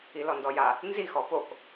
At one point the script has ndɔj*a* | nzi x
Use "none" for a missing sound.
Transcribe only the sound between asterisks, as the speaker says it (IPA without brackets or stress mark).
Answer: a